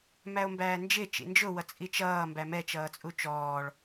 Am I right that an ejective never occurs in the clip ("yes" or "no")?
no